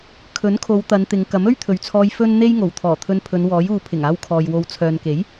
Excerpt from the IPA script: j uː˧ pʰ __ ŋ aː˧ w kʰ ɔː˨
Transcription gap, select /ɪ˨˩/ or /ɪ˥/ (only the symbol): ɪ˨˩